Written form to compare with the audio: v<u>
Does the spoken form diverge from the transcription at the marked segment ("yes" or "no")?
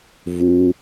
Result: no